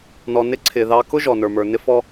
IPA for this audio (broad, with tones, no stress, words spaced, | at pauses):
nɔ˨nɪ˦ǀʰɪ˨ ðɑ˦ kʊ˦ ʒɔ˨nə˞˨mə˞˨ nɪ˦fɔ˦